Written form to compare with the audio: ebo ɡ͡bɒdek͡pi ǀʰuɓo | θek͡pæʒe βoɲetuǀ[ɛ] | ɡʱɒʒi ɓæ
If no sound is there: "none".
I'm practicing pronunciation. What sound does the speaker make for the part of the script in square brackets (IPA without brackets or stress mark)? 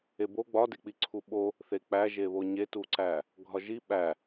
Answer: æ